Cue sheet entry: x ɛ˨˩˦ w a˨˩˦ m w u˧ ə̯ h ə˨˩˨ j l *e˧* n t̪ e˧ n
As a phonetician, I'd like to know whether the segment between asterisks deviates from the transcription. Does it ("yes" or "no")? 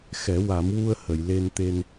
no